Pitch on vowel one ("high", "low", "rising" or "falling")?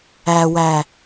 low